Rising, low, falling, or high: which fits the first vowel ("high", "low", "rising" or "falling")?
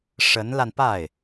rising